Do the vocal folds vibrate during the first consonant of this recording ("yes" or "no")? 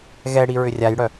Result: yes